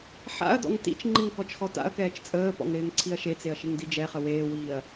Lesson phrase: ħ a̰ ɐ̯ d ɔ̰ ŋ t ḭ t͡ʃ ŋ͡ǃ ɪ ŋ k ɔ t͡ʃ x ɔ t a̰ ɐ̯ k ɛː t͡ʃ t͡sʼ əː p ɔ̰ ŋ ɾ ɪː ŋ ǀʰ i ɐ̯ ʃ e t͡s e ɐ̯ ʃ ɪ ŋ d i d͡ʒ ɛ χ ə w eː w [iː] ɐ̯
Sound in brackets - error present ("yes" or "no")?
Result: no